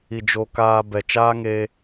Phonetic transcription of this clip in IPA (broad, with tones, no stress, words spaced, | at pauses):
i˨d͡ʒo˧kaː˧ bɛ˨t͡ʃaː˦ ŋeː˧